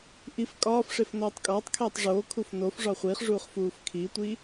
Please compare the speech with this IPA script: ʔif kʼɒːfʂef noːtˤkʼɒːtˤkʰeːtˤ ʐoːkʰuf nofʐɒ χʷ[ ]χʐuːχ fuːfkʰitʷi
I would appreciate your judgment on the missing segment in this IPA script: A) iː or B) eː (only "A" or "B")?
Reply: A